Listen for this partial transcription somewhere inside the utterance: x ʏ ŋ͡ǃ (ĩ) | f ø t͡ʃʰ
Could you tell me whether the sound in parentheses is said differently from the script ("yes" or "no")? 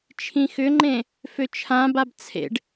yes